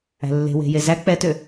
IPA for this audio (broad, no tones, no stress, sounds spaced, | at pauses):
æ̤ lː e̤ w e̤ j e z æ k͡p ɛ t ø